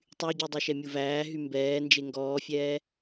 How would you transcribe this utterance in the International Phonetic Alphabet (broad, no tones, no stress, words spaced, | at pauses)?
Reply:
tˤyɟʉ dˤyʃɛmʲuvæː ɦymbɛːnd͡ʒe ŋɡɔːfʲɛː